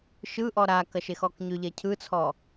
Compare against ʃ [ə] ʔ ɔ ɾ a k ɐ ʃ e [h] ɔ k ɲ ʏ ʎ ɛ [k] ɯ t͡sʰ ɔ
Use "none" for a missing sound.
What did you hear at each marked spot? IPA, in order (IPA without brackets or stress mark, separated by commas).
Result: ɯ, x, cʰ